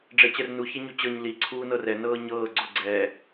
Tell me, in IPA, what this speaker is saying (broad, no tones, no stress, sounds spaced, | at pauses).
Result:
ɖ͡ʐ ɛ t͡ɕ ɛ r n u ç ɛ ɲ u t͡ɕ ɤ ɲ l i ǀʰ uː n ɤ r ɛ n ɤː ɲ ɤː ɡ͡ǀ o ɡ͡ǀ ɛː